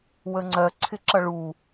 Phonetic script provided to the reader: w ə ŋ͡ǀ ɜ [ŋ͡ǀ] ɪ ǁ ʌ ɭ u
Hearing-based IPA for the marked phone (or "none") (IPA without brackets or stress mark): ǀʰ